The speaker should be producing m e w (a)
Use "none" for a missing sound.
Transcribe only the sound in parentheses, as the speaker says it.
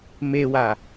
a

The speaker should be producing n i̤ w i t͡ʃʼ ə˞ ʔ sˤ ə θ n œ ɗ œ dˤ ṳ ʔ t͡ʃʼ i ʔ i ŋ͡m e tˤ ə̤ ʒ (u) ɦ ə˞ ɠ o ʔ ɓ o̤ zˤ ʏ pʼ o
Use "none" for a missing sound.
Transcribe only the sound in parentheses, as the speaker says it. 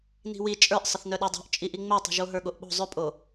o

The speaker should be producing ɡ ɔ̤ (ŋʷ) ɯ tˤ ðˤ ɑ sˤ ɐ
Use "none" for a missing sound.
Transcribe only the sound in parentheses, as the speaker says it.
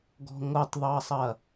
ŋʷ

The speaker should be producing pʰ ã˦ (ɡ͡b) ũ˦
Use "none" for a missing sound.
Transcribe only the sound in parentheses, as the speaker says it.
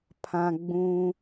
ɡ͡b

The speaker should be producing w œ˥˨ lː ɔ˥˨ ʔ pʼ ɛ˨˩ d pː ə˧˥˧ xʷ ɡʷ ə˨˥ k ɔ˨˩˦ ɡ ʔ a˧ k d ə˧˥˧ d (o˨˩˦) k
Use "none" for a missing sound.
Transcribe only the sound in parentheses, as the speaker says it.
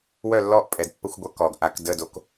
o˨˥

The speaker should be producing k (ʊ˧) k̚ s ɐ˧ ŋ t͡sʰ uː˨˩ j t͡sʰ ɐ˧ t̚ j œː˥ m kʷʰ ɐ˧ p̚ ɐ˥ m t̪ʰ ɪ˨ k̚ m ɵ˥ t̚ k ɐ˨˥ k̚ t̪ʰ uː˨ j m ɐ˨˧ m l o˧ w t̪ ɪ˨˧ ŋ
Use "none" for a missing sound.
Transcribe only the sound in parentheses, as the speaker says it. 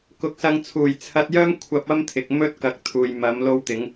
ʊ˨˥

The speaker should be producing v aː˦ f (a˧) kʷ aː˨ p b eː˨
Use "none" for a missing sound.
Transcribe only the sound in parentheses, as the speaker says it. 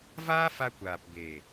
a˧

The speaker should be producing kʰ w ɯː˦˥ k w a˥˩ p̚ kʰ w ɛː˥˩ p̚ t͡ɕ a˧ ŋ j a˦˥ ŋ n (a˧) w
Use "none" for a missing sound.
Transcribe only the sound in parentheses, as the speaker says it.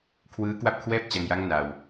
a˧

